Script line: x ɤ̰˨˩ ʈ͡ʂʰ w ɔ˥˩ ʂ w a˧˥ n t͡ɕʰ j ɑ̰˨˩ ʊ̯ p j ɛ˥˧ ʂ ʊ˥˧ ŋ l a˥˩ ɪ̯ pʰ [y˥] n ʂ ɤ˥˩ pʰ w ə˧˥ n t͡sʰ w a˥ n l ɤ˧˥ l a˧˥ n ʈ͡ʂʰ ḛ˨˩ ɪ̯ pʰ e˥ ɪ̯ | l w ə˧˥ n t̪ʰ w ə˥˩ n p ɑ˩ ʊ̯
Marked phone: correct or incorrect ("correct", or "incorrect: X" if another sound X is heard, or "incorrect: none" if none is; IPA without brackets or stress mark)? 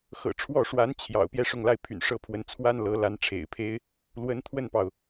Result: incorrect: y̰˨˩